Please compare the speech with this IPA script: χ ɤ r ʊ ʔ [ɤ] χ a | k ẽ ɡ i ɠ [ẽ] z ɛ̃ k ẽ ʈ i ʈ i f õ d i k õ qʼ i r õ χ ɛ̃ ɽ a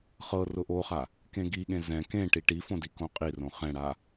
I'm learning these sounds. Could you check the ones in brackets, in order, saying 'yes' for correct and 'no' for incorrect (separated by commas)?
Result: no, yes